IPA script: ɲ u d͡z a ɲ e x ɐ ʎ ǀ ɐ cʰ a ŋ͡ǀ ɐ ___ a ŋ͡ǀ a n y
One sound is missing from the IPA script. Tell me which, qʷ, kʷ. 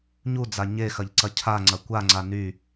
kʷ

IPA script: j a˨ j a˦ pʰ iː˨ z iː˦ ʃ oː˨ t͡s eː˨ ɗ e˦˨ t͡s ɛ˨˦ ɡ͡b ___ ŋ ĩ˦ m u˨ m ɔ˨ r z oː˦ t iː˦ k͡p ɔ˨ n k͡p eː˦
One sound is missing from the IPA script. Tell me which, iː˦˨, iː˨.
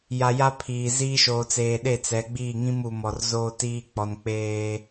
iː˦˨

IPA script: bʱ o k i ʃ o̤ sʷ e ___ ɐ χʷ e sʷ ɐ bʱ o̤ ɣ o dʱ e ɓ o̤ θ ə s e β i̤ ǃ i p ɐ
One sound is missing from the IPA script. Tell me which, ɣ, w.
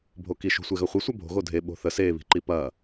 ɣ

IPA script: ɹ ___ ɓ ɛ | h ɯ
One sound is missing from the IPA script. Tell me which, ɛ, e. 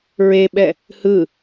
e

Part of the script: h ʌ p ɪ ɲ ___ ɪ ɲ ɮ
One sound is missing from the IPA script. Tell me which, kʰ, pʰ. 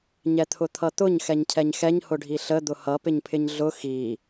pʰ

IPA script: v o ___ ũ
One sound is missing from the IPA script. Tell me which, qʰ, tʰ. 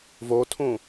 tʰ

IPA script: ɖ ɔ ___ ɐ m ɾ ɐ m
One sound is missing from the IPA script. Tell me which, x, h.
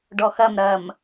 x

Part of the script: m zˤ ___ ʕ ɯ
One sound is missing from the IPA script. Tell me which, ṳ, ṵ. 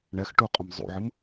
ṵ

